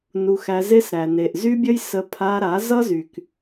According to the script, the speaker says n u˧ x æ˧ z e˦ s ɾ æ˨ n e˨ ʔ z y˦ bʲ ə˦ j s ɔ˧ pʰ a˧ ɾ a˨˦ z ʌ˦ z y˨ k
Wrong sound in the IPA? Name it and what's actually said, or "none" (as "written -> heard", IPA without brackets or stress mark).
ɔ˧ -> ə˧